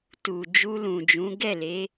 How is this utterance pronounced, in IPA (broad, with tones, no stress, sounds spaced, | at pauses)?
t u˨ d͡ʒ u˧ l ũ˨ d͡ʒ ũ˨˦ ɡ ɛ˦˨ l e˨˦